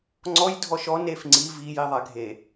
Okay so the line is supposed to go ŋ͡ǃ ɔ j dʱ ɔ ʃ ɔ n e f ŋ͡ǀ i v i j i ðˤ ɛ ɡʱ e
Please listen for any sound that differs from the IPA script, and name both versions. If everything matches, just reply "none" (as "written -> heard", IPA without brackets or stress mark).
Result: ŋ͡ǃ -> ŋ͡ǀ